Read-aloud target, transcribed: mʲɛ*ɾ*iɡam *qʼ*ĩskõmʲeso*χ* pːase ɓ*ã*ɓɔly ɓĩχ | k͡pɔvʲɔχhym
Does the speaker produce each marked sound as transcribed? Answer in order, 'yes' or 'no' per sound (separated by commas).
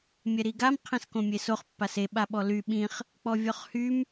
yes, no, yes, no